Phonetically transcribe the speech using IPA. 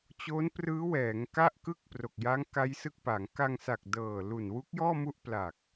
t͡ɕo˦˥nprɯː˦˥wɛː˩˦ŋ ka˥˩ʔkɯ˥˩k̚pro˨˩k̚ja˦˥ŋ ka˦˥jsɯ˦˥k̚pa˩˦ŋ ka˧ŋsa˨˩k̚dɤː˨˩ lu˨˩nwu˦˥k̚ jɔː˥˩mu˥˩ʔ pla˨˩k̚

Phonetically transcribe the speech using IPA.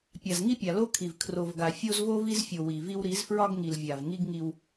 pʲa˨zŋi˦pʲa˨ lo˦kʰi˨v kʰro˨vɡa˨ fʲo˦zvo˦vi˦zfʲo˨ wi˨vi˦w ɾi˨˦zfɹɒ˦ɡŋi˨l vʲa˨vŋi˦ɡ ŋi˦w

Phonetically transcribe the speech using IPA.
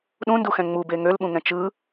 ɗũnduxɛ̃ ŋ͡mube ŋølɓũŋɛ̃ t͡ʃɯ

